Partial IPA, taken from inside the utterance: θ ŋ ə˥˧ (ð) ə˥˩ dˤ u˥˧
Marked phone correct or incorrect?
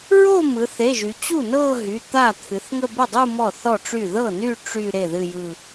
incorrect